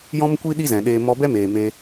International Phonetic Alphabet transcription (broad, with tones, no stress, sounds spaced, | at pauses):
j ɔ̃˦ m kʷ i˦ ɗ i˦ z ɛ̃˨ ɗ eː˧ m ɔ˧ b ɛ˦ m eː˨ m e˧